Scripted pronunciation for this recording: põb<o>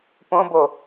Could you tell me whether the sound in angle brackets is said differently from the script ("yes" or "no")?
no